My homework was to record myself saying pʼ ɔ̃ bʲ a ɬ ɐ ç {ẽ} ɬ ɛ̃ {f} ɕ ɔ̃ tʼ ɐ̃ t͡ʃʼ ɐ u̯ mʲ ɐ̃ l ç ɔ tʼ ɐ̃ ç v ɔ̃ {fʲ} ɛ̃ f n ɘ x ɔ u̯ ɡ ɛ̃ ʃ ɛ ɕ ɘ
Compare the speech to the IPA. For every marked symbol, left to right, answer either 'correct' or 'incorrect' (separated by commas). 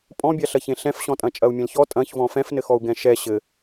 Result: correct, correct, incorrect